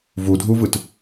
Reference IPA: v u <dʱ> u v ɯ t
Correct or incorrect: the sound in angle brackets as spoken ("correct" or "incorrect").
correct